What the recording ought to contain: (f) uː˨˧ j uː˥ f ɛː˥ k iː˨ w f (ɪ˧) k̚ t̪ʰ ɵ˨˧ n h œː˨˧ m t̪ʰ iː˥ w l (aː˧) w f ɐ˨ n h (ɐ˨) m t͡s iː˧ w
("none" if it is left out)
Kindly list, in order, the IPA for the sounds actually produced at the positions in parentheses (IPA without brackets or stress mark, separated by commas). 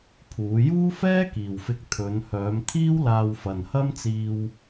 pʰ, ɪ˧, aː˧, ɐ˥